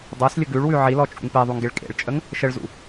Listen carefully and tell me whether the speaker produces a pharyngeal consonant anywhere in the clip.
yes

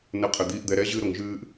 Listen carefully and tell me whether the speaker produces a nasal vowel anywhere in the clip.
no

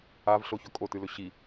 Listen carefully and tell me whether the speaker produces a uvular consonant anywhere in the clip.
no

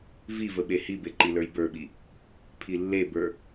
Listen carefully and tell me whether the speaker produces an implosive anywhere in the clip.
yes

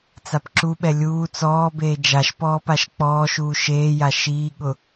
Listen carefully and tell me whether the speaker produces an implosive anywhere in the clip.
yes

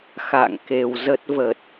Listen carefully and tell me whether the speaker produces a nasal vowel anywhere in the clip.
no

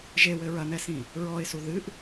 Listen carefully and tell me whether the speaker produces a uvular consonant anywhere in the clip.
no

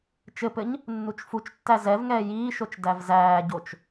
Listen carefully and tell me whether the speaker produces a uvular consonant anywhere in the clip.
no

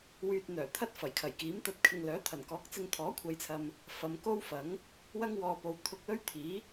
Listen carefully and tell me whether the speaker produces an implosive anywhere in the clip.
no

